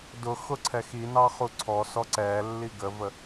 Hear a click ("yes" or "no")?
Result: yes